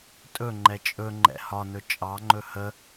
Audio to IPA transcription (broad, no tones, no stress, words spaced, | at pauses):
tʼɵŋ͡ǃɛ t͡ʃʼɵŋ͡ǃɛ̰ hɒnɵ t͡ʃʼɑŋ͡ǃɵ hə